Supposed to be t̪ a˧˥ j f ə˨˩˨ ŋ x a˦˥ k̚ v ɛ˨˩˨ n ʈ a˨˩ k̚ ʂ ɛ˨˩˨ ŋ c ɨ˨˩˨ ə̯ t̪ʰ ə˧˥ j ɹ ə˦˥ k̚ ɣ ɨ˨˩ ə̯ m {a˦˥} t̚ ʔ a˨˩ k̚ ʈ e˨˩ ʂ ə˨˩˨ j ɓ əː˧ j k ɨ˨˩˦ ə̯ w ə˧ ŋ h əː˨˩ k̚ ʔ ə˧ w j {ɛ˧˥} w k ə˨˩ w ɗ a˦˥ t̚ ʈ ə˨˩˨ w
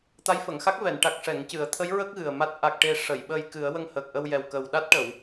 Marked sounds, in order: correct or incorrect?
correct, incorrect

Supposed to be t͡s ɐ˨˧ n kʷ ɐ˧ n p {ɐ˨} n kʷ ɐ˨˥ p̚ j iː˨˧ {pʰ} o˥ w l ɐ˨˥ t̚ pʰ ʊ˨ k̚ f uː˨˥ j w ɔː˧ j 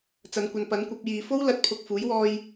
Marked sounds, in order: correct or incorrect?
incorrect, incorrect

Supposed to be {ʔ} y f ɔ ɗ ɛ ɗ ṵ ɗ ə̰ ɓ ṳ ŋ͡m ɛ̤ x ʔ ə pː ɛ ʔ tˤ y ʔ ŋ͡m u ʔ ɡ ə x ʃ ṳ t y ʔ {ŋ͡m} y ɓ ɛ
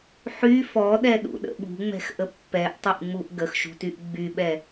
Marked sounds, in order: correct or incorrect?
incorrect, incorrect

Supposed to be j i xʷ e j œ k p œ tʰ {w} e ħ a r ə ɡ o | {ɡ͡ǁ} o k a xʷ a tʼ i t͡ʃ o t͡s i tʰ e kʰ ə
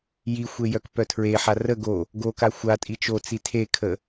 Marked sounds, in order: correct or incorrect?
incorrect, incorrect

